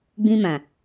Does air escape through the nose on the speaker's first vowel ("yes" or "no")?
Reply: yes